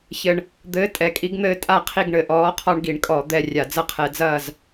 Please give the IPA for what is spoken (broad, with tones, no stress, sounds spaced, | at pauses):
ç ɘ˨˩ ɳ | d̪ ɘː˨˥ tʼ ɛ˨˩ kʼ i˨˥ ɡ n̪ ɘː˦ tʼ a˥˨ qʰ i˥˨ ɡ ɳ ɘ˨˩ ʔ ɔː˨˥ qʰ ɔ˦ ɳ ɡ i˧˩˧ ɳ kʼ ɔ˧˩˧ d̪ ɛ˥˨ rʲ a˧˩˧ d͡z ɐ˦ qʰ ɛ˧˩˧ d͡z ɐː˥˨ z